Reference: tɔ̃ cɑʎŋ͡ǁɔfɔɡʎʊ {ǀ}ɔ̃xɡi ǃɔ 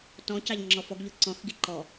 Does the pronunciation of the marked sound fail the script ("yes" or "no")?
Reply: no